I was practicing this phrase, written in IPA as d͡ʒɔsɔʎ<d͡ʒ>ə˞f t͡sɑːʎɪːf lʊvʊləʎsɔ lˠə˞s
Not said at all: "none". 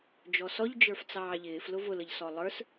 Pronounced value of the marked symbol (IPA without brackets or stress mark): d͡ʒ